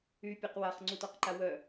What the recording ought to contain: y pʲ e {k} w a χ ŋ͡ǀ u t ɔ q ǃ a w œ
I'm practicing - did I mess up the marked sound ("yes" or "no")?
yes